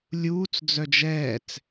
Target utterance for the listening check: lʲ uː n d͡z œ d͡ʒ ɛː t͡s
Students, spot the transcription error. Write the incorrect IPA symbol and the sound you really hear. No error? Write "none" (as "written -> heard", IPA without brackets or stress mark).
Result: n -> t͡s